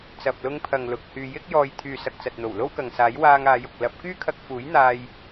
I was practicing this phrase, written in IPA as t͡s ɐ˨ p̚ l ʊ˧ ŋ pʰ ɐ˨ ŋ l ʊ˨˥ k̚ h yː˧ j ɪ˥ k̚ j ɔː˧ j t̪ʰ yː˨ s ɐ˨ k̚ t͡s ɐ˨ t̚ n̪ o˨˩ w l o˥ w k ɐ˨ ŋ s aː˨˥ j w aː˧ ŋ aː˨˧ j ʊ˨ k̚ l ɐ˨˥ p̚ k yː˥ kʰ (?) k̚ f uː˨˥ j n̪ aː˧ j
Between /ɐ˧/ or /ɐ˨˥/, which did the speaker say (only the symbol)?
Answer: ɐ˧